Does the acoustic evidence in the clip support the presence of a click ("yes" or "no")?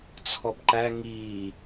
yes